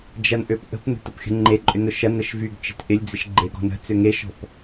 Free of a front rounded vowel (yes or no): no